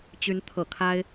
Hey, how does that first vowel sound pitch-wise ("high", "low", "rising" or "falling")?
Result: rising